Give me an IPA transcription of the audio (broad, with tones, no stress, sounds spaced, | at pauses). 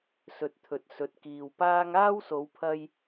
s ɵ˧ t̚ t̪ʰ ɵ˨ t̚ s ɵ˨˥ t̚ k iː˨ w p aː˥ ŋ aː˥ w s o˨˧ w pʰ ɐ˧ j